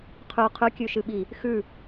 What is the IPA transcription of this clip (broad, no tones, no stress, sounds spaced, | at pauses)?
qʰ ʉ qʰ ʉ kʲ ʉ ʃ ɨ ɓ i | x ʉ